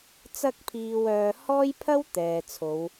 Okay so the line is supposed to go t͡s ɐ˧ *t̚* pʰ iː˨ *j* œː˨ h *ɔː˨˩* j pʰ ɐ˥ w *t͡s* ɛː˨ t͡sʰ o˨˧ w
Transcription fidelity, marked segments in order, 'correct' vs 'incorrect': incorrect, incorrect, incorrect, incorrect

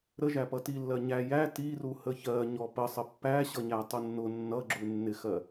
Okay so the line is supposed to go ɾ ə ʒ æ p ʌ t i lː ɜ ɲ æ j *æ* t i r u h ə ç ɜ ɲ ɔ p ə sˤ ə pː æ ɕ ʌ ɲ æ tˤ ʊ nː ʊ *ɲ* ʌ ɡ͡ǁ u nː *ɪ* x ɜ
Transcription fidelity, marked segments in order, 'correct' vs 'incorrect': correct, incorrect, correct

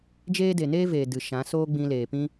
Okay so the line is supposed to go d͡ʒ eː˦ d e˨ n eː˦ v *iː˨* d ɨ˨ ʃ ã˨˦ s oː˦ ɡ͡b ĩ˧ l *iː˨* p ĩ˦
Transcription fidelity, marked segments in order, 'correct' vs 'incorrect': incorrect, incorrect

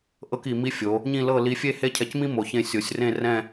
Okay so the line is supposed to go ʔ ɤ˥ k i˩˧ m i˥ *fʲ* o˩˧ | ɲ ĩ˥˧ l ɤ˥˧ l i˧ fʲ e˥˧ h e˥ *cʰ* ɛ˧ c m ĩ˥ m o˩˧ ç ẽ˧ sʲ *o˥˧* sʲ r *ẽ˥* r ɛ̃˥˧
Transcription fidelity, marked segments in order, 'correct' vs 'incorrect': correct, correct, incorrect, incorrect

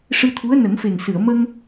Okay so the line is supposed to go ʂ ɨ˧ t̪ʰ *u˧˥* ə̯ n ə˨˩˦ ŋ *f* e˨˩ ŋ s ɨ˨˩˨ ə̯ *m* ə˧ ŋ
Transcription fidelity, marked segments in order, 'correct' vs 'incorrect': correct, correct, correct

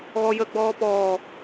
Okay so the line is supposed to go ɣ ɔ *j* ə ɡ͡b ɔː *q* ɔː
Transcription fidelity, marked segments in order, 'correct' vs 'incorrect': correct, incorrect

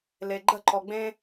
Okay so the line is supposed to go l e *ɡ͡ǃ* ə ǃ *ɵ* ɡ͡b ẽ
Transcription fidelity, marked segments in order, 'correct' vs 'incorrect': correct, incorrect

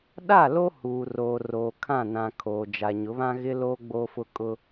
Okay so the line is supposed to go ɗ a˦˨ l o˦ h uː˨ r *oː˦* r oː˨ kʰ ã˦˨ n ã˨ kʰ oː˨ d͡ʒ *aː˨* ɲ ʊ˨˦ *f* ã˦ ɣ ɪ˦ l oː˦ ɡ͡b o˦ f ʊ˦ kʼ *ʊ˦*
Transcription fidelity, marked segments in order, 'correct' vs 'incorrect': incorrect, incorrect, incorrect, correct

